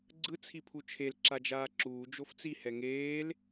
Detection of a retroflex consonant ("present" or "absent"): absent